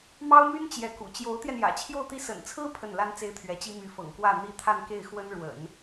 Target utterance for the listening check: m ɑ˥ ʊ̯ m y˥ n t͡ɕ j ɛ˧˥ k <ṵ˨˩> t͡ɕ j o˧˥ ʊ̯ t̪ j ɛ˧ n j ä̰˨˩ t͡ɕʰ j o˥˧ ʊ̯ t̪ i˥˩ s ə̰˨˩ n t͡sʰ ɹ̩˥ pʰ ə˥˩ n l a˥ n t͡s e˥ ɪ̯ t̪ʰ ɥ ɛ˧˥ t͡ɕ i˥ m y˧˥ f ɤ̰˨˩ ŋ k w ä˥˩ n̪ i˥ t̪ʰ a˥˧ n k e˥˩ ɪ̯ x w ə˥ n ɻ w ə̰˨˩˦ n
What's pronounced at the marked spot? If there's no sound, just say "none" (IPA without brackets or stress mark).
ṵ˨˩